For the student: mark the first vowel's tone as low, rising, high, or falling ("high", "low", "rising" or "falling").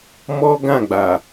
high